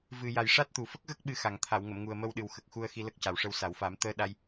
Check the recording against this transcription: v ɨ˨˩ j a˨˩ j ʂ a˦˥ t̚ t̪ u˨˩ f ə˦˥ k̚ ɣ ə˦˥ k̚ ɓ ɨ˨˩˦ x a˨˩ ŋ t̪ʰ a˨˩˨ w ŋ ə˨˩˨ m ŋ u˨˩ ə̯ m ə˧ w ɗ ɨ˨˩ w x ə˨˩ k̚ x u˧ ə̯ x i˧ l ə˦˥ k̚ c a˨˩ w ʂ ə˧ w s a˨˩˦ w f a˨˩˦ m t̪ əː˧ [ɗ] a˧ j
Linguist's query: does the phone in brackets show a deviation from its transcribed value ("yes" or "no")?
no